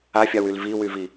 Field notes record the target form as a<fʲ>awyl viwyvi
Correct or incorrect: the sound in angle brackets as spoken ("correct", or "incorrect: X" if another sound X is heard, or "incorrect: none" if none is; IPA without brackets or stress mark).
correct